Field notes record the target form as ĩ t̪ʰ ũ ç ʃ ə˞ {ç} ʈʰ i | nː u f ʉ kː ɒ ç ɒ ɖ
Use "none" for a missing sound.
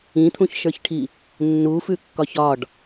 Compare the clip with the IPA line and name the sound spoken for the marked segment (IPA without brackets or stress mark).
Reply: ç